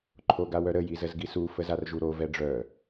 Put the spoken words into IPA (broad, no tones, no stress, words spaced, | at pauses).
ǃʰoɡawœɾə jizəzɡisu fəzarʒuɾo vɛɖ͡ʐœ